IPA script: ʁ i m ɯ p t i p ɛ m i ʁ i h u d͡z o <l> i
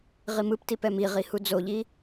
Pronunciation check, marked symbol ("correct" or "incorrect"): incorrect